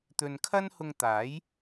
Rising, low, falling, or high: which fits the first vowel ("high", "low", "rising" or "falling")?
low